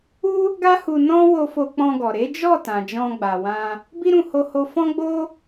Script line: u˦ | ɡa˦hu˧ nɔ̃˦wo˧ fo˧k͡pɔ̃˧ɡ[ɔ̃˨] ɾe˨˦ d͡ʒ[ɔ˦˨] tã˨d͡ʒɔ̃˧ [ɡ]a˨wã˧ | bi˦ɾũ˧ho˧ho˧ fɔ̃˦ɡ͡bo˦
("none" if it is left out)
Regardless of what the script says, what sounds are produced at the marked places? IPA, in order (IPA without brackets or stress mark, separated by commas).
ɔ˨, ɔ˦˨, ɡ͡b